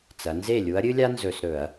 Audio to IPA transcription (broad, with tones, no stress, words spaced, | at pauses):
t͡sɐ˩˧nze˥˩ lʲu˨˥ɐ̯ɾʲɨ˥lʲa˥nzɵ˧˩˧s ɾɵ˧˩˧ɐ̯